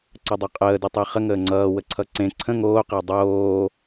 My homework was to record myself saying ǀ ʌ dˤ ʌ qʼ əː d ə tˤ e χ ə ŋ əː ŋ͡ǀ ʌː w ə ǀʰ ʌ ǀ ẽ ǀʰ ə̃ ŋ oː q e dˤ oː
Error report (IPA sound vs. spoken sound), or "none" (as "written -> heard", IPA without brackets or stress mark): none